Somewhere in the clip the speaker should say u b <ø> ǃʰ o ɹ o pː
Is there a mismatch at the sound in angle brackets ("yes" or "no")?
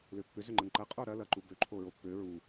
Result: no